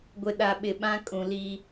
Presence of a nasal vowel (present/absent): present